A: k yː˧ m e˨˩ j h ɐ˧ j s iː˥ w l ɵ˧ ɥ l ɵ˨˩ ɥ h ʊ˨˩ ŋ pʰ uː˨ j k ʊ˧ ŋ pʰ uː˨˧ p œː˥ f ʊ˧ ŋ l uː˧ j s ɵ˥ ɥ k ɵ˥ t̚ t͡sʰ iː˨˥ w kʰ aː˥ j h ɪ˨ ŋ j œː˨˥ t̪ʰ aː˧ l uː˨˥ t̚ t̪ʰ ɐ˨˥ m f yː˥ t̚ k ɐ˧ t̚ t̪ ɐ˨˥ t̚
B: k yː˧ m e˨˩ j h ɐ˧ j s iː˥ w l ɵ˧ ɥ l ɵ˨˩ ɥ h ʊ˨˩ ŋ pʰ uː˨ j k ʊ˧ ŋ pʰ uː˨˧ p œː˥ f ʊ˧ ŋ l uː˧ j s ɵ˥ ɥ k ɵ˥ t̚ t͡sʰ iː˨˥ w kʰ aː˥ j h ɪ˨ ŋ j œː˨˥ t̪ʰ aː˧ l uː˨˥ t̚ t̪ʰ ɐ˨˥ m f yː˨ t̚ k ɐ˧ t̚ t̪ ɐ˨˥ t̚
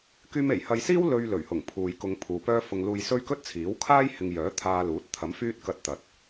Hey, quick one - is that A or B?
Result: A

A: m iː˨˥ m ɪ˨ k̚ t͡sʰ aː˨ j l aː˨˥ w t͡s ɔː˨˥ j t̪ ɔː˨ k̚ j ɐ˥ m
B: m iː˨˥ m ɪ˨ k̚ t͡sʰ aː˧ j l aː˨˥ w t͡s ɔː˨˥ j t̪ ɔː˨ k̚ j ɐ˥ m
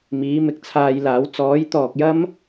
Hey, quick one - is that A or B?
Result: B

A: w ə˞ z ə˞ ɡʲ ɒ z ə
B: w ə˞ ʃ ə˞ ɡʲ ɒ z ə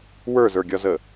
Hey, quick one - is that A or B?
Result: A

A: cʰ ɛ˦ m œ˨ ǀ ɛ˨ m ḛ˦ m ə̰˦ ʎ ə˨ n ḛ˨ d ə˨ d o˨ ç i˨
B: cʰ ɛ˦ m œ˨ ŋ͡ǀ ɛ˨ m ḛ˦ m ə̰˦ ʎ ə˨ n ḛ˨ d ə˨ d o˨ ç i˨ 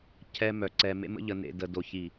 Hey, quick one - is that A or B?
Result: A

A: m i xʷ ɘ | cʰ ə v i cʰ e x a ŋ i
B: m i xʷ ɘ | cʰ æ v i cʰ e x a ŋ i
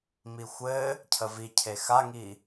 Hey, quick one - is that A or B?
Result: A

